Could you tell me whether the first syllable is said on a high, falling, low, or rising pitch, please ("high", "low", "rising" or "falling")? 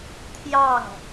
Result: falling